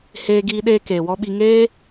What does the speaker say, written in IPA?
h eː˧ ɡ iː˧ ɗ eː˧ k eː˨ w ɔ˧ ɓ i˧ ŋ eː˦

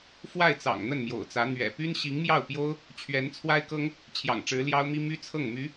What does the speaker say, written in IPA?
f w a˥˩ ɪ̯ t͡s ɑ̰˨˩ ŋ n̪ ə˥˩ n m j o̰˨˩ ʊ̯ t͡s ä˧˥ n̪ ɥ ɛ̰˨˩ p y˥ n ɕ i˧˥ ŋ m j ɑ˥˩ ʊ̯ p j o˥ ʊ̯ | t͡ɕʰ ɥ ɛ˧˥ n t͡sʰ w a˥ ɪ̯ k ɤ˥ ŋ | t͡ɕʰ j ɑ̰˨˩ ŋ ʈ͡ʂ ɻ̩˧˥ l j ɑ˥ ʊ̯ m i˥ m y˥ t͡sʰ ɤ˥˩ ŋ m y˧˥

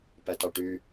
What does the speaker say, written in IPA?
p æ t ɑ ʈ y

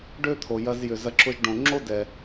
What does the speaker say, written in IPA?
ɖ ø˥ t̪ʰ o˩ j ɐ˧ z j ʏ˩ z ɐ˧ ǁ ʊ˧ ʒ ɖ õ˩ ŋ͡ǁ o˥ d ɛ˩

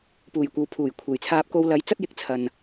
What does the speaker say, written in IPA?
p uː˨˩ j kʷ ɐ˨˧ w pʰ uː˨˩ j kʷʰ e˨˩ j t͡sʰ aː˧ p̚ k o˧ w l ɐ˨˥ j t͡s ɐ˥ t̚ j ɪ˧ k̚ t͡sʰ ɐ˨ n

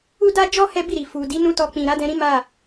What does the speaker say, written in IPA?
u˦ d a˦ d͡ʒ ɔ˦ h ɛ˦ b i˦˨ ɾ i˨ f u˨ d i˨˦ n ũ˦ t ɔ˧ k͡p ĩ˨ ɾ a˨˦ d ɛ̃˧ ɾ ĩ˦ m a˦˨

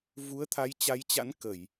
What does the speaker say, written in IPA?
v u˨˦ ə̯ t̪ʰ a˨˦ j t͡ɕ a˨˦ j t͡ɕ a̰˧˥ n k ə˧˩˨ j

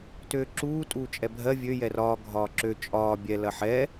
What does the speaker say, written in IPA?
t øː ǁ uː tʼ uː t͡ʃʼ ɛ bʱ ɜ vʲ ø j ɛ r ɒː ɡʱ ɒː ǁ ø t͡ʃʼ ɒː bʲ ɛ l ɐ ħ ɛ

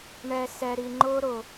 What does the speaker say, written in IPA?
ɳ ɛ˨ s ɛ˨ ɾ i˨ ŋ͡ǃ ʊː˧ ɾ ʊ˨

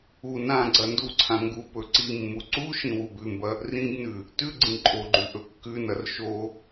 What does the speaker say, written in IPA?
u n ã ɡ͡ǀ ɐ n d u ǀʰ ã ŋ ɡ u p ɵ ǀ i mː u ǀ u ʃ ĩ w u b ʉ m b ɐ | r ĩ b n ʉ | t ʉ ɡ͡ǀ ĩ ǃʼ o ɡ͡ǃ ʉ ʔ ɵ kː ʉ n ɐ r ʃ o

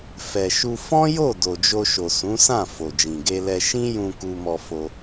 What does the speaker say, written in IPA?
f ɛ˨ ʃ u˧ f ɔ̃˦ j o˦˨ d o˨ d͡ʒ o˧ ʃ o˨ s ũ˨˦ s ã˦˨ f o˨ d͡ʒ ĩ˨ ɡ e˧ l ɛ˧ ʃ ĩ˦ j ũ˧ k u˧ m ɔ˧ f o˧

